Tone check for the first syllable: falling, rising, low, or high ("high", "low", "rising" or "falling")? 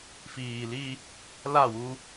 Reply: low